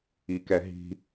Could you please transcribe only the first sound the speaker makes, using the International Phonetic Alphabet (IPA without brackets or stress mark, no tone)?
i